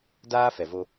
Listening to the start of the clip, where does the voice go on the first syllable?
high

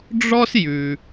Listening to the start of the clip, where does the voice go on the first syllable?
high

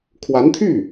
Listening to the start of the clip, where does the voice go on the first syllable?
rising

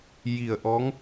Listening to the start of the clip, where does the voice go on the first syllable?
low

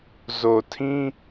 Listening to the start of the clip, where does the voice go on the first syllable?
low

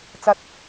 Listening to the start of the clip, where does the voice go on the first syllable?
low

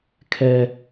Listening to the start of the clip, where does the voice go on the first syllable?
high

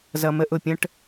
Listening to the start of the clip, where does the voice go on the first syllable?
low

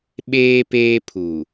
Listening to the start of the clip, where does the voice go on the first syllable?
high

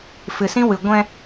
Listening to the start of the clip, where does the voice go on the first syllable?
low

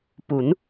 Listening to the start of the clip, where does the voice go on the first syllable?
rising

